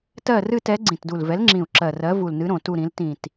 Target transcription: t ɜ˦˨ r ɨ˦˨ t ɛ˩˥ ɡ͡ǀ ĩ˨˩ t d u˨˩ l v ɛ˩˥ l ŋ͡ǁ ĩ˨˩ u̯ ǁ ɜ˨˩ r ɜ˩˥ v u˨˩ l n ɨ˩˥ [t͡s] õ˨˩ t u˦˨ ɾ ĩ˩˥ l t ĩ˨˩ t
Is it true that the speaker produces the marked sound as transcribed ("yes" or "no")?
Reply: no